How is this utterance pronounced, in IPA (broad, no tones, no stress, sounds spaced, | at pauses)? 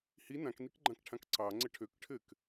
h i n ã k n i k ɡ͡ǃ ã k ʈʰ ã k ǀ ɑ ŋ͡ǀ ɘ ʈʰ ø k ʈʰ ɘ k